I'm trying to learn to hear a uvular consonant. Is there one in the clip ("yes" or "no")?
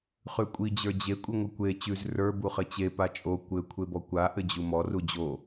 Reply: yes